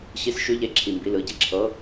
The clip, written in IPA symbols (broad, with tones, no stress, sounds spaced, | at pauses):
ɕ i˨˦ s ʃ ʉ˨˦ ʎ e˧˩ ǁʰ i˩˧˩ m b i˩˧˩ l ɯ˩˧˩ ɟ i˧˩ ǁʰ ɤ˨˦